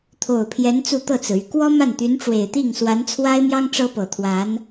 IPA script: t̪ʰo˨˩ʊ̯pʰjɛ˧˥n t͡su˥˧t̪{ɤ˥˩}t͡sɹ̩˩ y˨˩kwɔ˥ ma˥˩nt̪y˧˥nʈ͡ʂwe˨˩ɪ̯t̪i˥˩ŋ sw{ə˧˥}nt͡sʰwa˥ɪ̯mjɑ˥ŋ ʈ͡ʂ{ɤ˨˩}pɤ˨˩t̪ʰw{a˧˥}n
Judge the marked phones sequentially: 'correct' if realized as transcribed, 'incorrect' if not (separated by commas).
correct, incorrect, incorrect, correct